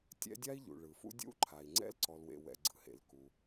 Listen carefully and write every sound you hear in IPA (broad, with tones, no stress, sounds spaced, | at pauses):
tʲ ɛ̰˥ dʲ a˥ i̯ ʎ ṵ˩ ɭ ɯ˩ f ṵ˥ dʲ ṵ˥ ǃʰ a˩ i̯ ŋ͡ǀ ɛ̰˥ l ǀ ɔ˩ l w ḛ˩ w ɛ̰˩ ɡ͡ǀ ɯ˩ h ḛ˩ l k u˩